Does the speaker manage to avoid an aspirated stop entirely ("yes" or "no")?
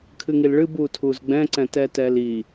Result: no